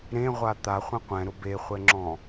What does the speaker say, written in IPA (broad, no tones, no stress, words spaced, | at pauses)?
ɾẽʁʷa t̪aχʷɛ̃ qʷɛ̃ɾʊ beχʷɛŋ͡ǁɔ̃